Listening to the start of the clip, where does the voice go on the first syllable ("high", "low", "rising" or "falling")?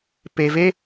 low